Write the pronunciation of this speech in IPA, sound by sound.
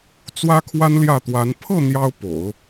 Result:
t͡s w ä˥ kʰ w a˥ n l j ä˥˩ t̪ w a˧˥ n pʰ ɤ˥˩ n̪ j ɑ˥ ʊ̯ p o̰˨˩˦ ʊ̯

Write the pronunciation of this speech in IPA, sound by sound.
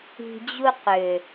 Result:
i̤˨ d͡ʑ u˧ q ø˨

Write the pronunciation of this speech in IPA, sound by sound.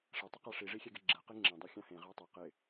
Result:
ʂ ɛ tˤ ɪ q a ʂ i ʐ i xʲ ɛ ɡ ɛ ɡ͡ǁ ɛ q e ŋ͡ǁ ẽ dˤ e xʲ ã h ẽ ʁ a tˤ ɛ q ɪ

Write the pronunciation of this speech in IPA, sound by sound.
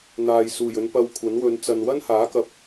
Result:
n̪ aː˨ j s uː˨˩ j ɵ˨˧ n p ɐ˧ w kʷʰ ɐ˨˥ n w ɵ˨˧ n t͡s ɐ˨ n w ɐ˥ n h aː˨˥ k ɐ˨ p̚

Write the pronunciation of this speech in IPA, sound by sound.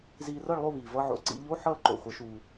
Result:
z iː˧ r ʌ˥˧ ɭ lˠ o˥˧ β iː˩ v ʌ˧ ʕ o̰˩˧ ǀ ḭ˩˧ ʎ o˧˥˧ ħ ʌː˥˧ ǃ o̰˩ χʷ ʌ˩˧ ʃ uː˩

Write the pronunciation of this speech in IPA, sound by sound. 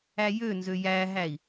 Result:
æ j ø n z ø j æ ɦ æ i̯

